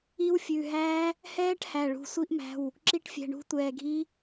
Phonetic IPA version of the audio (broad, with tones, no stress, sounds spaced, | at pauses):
i˦˥ w fʲ ʉ˩˧˩ ɦ æː˦˥ | h ɛː˦˥ ʈ h æ˩˧˩ ɭ ṳ˩˧˩ sʷ i˦˥ ʔ m æ̤˩˧˩ w | ǁ i˦˥ ʈ fʲ ɛ̤˩˧˩ ɳ ṳ˦˥ tʷ ɛː˩˧˩ ɡʱ i˦˥